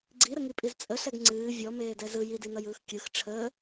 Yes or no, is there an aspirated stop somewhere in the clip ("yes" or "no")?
yes